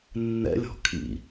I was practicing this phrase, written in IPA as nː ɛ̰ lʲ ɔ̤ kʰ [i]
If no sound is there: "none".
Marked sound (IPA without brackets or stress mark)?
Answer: ḭ